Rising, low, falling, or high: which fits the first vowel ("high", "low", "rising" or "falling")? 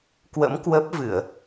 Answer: rising